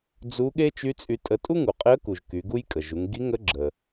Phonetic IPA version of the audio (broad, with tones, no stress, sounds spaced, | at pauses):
d͡z u˧˥ ɠ e˥ t͡ʃ y˧˥ t͡sʼ y˧ tʼ ə˧ tʼ u˥ ŋ u˩ qʼ e˧˥ ə̯ k u˩ ʒ k y˩˧ ɡ u˥ j kʼ ə˩ ʒ u˩˧ ŋ ɡ i˧˥ ŋ ə˧˥ ɡ͡ǁ ə˩